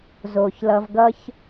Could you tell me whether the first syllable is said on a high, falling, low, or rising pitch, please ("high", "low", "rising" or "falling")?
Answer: low